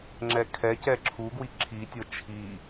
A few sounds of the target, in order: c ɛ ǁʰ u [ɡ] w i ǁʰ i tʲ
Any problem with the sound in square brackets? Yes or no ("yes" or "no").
no